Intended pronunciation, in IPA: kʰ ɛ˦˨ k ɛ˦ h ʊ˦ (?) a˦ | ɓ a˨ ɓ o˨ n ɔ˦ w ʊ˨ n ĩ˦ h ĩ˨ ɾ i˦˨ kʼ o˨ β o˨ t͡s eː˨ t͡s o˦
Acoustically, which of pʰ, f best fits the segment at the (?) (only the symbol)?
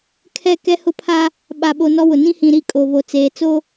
pʰ